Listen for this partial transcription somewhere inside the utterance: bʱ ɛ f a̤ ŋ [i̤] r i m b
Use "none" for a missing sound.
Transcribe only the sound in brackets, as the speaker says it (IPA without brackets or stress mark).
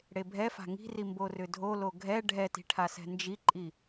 i̤